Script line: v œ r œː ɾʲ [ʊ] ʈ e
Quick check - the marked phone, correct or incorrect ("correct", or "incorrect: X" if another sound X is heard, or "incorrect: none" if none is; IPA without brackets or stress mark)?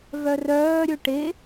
incorrect: ɵ